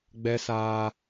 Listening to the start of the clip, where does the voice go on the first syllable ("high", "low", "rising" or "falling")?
high